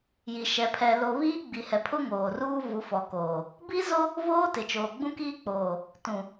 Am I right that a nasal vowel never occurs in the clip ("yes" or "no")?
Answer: no